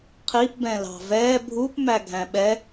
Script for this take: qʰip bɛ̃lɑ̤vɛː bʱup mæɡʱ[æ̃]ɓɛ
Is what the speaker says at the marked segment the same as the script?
yes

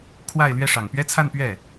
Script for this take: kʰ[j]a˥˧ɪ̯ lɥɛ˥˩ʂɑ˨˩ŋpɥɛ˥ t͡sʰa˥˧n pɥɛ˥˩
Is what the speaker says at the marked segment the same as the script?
no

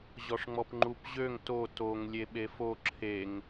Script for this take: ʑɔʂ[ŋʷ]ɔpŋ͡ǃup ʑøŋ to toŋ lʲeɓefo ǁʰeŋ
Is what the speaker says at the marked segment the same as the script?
no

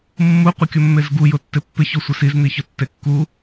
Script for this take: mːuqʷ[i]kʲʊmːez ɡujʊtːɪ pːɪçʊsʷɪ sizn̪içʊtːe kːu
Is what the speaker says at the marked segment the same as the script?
no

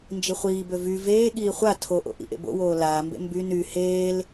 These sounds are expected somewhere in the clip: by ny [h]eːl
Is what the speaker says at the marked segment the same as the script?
yes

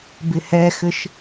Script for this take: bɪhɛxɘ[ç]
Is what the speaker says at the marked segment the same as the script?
no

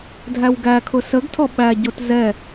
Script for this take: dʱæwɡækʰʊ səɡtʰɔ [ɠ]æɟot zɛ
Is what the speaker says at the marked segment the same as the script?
no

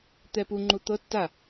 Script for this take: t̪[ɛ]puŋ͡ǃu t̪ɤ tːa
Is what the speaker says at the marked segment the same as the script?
yes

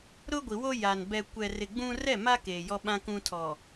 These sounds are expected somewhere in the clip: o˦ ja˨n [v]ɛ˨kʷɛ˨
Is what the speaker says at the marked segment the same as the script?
no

